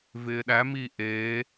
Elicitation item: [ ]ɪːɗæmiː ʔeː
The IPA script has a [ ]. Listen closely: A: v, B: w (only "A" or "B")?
A